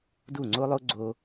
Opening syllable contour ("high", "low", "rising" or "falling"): falling